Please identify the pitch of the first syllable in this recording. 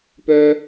high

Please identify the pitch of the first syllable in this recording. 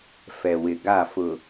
low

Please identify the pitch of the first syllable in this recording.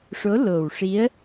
rising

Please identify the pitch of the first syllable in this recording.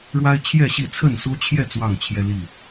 high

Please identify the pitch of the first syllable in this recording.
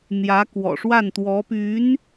rising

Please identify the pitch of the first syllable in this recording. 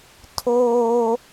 high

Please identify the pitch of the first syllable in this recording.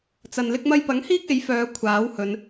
low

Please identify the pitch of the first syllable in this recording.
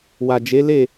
low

